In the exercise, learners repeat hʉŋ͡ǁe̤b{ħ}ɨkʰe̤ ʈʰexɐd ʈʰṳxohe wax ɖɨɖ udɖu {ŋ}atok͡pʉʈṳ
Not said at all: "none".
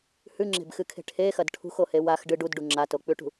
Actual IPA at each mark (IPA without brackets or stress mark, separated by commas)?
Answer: x, ŋ͡ǁ